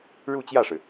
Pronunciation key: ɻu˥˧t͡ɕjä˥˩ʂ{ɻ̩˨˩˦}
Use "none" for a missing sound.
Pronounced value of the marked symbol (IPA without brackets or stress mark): ɻ̩˩